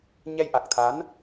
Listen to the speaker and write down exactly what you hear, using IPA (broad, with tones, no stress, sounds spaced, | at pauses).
ɲ ɛ˧ j ʔ a˨˩ k̚ t̪ʰ a˨˦ n